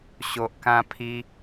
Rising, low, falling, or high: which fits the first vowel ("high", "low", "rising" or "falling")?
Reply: low